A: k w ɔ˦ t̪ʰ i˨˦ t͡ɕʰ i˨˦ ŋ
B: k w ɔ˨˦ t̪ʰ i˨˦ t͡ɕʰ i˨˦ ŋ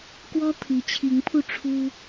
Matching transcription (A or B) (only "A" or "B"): A